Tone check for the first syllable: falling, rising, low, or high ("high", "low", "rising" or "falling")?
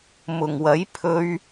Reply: low